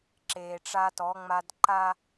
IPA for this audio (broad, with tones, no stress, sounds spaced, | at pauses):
ǁ eː˨ ʈ͡ʂ a˦ t ɔ˨˦ ŋ͡m a˦ d ǃ a˦